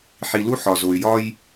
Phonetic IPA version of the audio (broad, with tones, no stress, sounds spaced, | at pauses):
ħ i˨ l u˦ ħ ɒ˨ z o˨ y̯ j ɒ˦ j